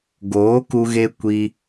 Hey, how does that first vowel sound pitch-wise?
rising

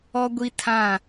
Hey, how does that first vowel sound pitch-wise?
high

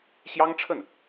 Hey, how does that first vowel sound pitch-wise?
high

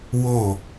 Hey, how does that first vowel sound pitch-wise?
falling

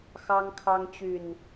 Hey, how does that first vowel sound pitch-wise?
high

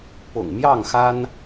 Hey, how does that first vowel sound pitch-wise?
low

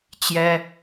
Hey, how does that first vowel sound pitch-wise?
high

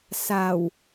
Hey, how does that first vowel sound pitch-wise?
low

